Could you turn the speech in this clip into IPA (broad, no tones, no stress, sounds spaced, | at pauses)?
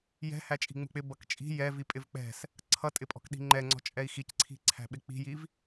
j ɛ̤ h æ t͡ʃʼ i̤ ŋ͡m ṳ k͡p ɪ b ʌ k t͡ʃʼ i̤ j ɛ v i pʼ ɪ v k͡p ɛ̤ s | ǀʰ ʌ tʼ ɪ pʼ ɔ̤ k ɗ i̤ ŋ͡ǃ ɛ ŋ͡ǀ ɔ̤ t͡ʃʼ ɛ i̯ x i c ǀʰ i̤ ǀʰ æ̤ ɓ ɪ k͡p i̤ j i v